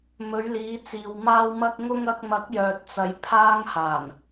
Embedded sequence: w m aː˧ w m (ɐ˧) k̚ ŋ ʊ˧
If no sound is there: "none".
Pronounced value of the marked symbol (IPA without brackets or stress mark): ɐ˧